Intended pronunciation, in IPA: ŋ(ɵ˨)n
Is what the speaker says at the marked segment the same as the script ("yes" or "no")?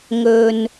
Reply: yes